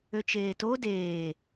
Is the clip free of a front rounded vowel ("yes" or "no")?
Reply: no